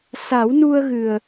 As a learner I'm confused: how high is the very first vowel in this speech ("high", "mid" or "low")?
low